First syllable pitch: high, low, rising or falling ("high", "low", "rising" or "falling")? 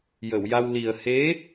low